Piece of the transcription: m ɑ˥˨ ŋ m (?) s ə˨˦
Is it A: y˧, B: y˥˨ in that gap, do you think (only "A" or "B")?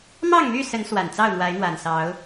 B